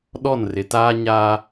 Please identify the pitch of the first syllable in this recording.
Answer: falling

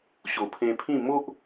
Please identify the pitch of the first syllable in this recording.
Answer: low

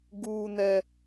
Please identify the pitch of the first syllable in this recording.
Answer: high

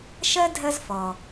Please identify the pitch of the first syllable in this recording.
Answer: high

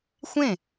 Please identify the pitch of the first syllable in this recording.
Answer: falling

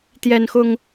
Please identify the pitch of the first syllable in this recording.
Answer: high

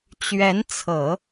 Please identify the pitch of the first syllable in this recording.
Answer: rising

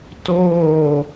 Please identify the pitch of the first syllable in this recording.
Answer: falling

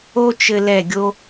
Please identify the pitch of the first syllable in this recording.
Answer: high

